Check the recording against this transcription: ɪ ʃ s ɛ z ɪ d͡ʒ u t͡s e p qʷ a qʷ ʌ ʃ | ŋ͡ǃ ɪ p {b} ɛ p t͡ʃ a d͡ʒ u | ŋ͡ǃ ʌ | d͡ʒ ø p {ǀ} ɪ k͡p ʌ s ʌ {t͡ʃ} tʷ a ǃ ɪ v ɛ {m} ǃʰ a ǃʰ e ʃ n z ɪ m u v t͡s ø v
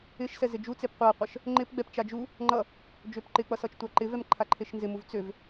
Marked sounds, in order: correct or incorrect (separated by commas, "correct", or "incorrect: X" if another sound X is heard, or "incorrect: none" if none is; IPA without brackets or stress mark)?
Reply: incorrect: ɡ͡b, incorrect: ǃ, correct, correct